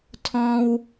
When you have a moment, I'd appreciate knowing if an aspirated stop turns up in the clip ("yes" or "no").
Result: yes